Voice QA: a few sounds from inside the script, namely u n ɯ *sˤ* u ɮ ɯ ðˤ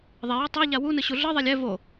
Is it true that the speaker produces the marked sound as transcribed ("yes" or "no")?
no